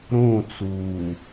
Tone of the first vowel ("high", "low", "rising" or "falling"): falling